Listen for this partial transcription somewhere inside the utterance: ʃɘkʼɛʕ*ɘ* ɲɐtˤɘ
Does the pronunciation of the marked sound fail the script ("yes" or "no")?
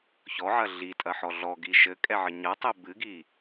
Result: no